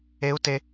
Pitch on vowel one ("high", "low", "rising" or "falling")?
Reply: rising